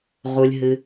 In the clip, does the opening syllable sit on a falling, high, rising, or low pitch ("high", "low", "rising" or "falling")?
low